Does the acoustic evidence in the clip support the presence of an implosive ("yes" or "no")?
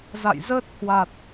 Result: no